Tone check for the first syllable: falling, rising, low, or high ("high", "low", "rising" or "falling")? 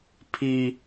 high